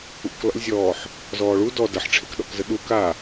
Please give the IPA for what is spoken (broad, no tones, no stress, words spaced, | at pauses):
ṵk lɔ̰lʲzʲɔːħ | zɔːɭu dɔ dɐħʈ͡ʂʰekɗɔ̰kzə ɗu ka